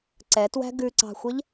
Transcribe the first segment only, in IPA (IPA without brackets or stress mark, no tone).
ǀ